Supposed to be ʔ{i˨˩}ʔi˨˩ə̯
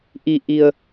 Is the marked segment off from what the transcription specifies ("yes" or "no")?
no